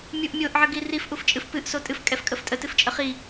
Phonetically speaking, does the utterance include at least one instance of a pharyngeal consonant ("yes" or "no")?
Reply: yes